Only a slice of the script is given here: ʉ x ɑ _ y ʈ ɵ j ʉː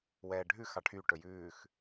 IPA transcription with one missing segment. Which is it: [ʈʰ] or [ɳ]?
ʈʰ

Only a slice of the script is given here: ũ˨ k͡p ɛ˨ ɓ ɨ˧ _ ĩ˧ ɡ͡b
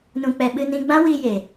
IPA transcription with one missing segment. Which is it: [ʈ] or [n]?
n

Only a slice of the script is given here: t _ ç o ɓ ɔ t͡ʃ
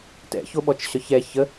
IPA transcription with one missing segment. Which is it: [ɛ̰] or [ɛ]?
ɛ̰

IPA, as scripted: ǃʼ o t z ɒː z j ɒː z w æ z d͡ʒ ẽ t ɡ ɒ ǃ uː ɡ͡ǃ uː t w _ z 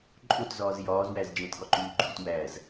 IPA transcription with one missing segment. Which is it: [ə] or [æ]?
æ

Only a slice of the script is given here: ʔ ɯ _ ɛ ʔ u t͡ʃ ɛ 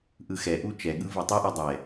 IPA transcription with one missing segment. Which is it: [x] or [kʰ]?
x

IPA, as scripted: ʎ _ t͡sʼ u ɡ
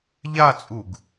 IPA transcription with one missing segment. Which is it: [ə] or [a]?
a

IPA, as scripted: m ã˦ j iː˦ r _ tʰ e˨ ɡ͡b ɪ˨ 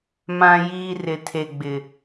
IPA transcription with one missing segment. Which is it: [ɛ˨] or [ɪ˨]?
ɪ˨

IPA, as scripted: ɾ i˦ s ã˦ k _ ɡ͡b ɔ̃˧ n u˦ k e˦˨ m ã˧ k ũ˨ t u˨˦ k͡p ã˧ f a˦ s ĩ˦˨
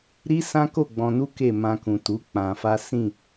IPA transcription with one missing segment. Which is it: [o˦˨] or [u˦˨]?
o˦˨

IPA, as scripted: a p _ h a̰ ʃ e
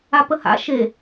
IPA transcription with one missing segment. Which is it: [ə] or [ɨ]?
ə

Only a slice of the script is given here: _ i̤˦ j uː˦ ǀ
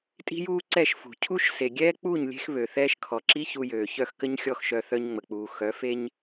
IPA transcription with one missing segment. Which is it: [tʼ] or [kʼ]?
tʼ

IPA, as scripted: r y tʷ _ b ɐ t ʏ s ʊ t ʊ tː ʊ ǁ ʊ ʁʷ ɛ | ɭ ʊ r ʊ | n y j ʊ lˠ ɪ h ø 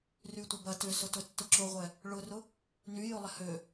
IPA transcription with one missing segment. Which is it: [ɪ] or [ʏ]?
ɪ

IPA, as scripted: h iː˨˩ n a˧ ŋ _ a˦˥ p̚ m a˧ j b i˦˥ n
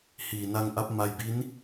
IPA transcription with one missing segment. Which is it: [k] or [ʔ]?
ʔ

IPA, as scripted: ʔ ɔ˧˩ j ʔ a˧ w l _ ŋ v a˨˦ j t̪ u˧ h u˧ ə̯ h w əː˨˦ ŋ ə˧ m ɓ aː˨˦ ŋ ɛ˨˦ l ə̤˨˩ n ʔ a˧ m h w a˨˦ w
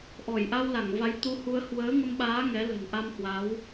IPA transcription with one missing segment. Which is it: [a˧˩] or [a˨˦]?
a˧˩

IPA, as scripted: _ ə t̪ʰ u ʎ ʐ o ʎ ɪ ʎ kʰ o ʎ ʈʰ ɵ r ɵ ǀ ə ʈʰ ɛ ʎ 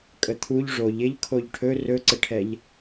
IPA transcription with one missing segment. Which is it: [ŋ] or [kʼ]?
kʼ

